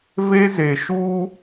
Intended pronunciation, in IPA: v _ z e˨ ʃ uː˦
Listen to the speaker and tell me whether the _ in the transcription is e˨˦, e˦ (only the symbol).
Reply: e˦